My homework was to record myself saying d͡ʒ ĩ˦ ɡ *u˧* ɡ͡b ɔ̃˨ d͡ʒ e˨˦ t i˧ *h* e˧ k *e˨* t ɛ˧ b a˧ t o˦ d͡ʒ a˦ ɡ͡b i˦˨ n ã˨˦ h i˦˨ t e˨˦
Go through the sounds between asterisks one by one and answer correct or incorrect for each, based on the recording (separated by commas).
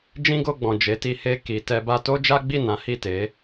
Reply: incorrect, correct, incorrect